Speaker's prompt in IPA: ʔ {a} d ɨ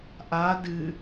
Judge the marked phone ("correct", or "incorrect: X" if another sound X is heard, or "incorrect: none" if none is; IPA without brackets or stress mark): incorrect: aː